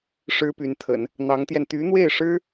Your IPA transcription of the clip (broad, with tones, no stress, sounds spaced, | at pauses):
ʂ ɻ̩˥ p y˧˥ n t̪ʰ ə̰˨˩˦ n | n̪ ɑ˧˥ ŋ t̪ j ɛ˧ n t̪ y˧˥ n̪ w e˥˩ ɪ̯ ʂ ɻ̩˥